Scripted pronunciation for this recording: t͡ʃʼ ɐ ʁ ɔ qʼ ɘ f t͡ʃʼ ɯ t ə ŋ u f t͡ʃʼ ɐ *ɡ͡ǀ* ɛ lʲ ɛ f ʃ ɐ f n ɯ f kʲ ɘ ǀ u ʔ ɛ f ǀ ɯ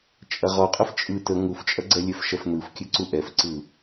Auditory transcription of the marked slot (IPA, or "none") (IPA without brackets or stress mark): ɡ͡ǀ